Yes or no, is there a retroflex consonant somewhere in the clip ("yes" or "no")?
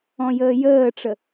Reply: yes